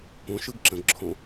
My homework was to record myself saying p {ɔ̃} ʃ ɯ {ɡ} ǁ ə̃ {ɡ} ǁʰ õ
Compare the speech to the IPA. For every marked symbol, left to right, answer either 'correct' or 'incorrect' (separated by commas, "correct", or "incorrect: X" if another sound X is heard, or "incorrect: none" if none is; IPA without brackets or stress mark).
incorrect: õ, correct, correct